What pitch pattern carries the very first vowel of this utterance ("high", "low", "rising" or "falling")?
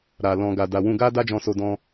low